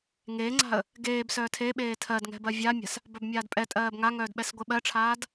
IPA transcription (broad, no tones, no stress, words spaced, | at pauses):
ŋeːŋ͡ǀa̤ə̯ | ɡeːbsœː tʰeɓeː tʰɜd ŋɛ̤bɜvʲamʲa̤s | bœbmʲaːdpʼɛtʼɜːb ŋaŋœːd ɓɛsɡʷeɓɜʈ͡ʂʰaːd